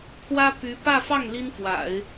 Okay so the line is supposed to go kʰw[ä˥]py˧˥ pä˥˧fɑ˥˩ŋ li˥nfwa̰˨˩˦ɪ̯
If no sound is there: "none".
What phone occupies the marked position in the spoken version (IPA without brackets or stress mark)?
ä˥